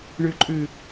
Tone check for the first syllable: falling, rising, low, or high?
low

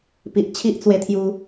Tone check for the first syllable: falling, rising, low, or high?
low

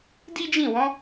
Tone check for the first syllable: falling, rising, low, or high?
high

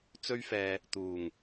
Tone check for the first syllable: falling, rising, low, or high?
high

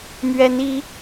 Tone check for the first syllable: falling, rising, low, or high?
rising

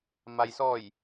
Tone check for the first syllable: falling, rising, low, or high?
low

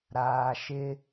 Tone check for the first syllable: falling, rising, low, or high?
low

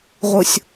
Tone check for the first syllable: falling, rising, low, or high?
low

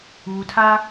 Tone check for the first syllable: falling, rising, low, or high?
low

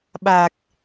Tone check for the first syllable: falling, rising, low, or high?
low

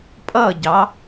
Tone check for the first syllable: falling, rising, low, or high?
falling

